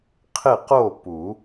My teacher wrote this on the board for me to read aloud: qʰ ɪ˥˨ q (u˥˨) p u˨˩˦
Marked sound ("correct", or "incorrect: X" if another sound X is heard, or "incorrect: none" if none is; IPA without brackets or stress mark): incorrect: o˥˨